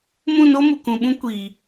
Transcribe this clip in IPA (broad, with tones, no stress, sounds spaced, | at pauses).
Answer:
m ũ˦˨ n o˦ m u˨ k ũ˨ ɓ ũ˦ kʷ iː˨